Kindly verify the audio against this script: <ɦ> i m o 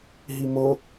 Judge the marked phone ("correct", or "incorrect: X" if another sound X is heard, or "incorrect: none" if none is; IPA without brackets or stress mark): correct